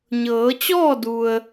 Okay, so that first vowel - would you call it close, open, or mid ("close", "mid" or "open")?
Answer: mid